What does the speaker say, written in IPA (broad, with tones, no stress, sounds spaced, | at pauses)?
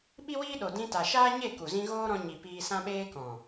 ɓ i˦ w iː˦ ɗ o˨ d ĩ˧ t a˨ ʃ aː˦ ɲ e˦˨ k u˨ z ĩ˦ ɣ oː˦ ɾ ɔ̃˧ ɲ i˨ p iː˧ s ã˦ ɓ eː˧ k ɔ̃˨